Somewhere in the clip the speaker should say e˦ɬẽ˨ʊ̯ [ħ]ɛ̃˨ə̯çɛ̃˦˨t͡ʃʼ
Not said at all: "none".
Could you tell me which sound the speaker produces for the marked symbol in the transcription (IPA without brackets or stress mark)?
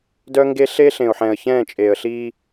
ħ